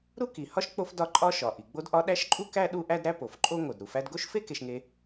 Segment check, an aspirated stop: absent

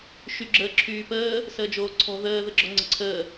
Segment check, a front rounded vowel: present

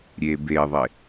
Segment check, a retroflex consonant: absent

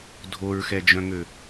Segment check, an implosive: absent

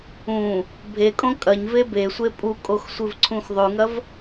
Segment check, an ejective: present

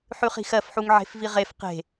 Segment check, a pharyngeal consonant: present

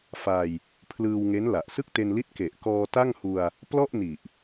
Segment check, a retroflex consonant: absent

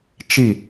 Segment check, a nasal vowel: absent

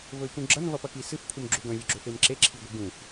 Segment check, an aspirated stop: present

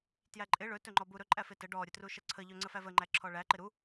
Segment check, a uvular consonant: absent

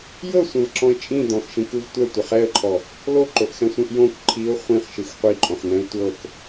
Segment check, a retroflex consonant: absent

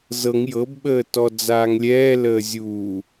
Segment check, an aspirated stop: absent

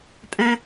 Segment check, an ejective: present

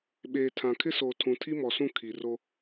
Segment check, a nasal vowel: present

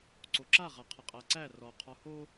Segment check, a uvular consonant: present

